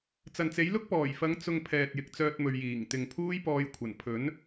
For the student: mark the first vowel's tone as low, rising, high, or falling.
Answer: low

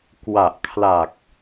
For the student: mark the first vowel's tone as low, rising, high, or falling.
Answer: low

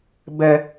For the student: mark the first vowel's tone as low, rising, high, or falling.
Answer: low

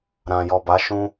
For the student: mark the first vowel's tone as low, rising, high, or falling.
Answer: low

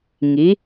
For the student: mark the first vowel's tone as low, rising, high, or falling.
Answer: rising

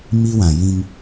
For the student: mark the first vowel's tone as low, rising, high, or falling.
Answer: high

